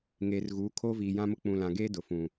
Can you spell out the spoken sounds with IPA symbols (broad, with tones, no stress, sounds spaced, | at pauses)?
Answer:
ŋ eː˨ r ɣ uː˨˦ kʰ oː˦ v iː˨ j ã˦ m ʊ˦ k͡p ũ˨ l ã˨ ɡ eː˦ d ʊ˨ f ũ˨